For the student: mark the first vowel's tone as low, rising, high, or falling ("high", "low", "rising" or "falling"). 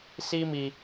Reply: high